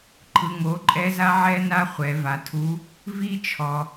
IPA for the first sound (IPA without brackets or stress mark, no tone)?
ǃʰ